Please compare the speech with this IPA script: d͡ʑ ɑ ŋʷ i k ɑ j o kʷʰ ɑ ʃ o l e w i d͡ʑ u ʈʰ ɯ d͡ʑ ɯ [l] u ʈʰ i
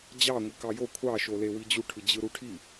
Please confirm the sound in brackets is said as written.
no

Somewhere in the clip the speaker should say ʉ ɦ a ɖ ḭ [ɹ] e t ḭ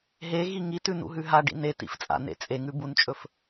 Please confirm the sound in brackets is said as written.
no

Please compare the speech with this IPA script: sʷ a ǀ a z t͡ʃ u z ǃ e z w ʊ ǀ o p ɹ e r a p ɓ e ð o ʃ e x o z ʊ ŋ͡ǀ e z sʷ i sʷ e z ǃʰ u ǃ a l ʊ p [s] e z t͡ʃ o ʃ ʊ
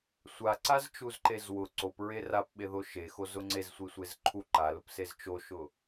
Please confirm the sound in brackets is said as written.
yes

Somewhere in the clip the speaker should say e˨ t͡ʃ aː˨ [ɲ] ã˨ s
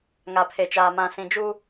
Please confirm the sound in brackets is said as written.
no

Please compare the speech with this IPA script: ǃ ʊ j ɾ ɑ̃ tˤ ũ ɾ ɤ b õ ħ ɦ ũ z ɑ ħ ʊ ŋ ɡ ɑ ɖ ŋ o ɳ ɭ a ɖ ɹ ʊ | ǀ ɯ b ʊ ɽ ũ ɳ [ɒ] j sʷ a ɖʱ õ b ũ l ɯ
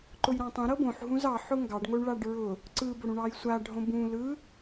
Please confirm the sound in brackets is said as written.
no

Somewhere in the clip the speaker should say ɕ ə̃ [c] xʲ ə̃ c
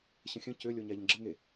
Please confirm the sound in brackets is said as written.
no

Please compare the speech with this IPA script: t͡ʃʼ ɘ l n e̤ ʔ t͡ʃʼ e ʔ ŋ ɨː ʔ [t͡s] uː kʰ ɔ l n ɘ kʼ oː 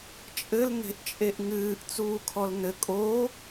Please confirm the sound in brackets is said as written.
yes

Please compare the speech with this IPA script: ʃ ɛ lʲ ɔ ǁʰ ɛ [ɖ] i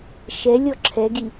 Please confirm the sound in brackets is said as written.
no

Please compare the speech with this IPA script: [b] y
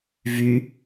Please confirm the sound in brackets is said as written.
no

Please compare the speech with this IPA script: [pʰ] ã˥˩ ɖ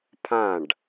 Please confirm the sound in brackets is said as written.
yes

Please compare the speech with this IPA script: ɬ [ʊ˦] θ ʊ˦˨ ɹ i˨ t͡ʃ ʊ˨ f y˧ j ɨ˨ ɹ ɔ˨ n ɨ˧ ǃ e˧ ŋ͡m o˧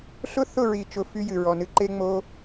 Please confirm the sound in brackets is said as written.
yes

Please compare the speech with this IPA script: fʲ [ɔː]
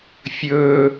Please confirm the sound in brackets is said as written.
no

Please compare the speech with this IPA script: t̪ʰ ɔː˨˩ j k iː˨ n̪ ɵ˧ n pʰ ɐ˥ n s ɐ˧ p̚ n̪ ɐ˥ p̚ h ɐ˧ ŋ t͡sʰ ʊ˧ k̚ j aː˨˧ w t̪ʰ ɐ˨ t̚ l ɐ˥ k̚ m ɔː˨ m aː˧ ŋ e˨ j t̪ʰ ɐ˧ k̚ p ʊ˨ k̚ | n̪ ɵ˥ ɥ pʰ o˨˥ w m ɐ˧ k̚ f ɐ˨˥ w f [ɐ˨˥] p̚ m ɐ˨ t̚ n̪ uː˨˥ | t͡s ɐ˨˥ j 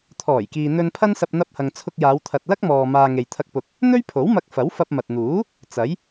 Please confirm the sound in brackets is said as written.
no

